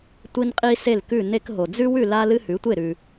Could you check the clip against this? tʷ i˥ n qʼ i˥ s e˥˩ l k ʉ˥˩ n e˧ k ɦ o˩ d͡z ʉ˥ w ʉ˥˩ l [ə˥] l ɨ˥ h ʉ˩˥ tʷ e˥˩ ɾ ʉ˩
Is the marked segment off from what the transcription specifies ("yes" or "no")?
yes